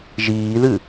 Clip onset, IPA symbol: ʒ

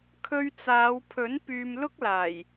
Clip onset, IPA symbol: kʰ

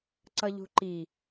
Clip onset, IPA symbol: ǀ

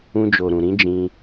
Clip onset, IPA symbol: ũ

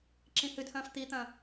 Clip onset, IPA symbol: ǁ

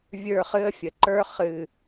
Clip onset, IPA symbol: vʲ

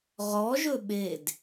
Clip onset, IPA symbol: ʁ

